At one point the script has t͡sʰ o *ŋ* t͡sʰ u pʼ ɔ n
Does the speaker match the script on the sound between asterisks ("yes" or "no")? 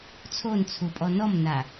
no